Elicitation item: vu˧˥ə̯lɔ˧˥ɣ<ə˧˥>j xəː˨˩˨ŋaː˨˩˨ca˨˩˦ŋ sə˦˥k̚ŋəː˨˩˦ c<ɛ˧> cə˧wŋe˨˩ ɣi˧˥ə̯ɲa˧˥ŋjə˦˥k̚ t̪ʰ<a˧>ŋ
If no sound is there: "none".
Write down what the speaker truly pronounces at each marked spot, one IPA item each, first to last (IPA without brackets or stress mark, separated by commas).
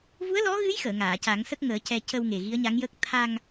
ɨ˧˥, ɛ˧, a˧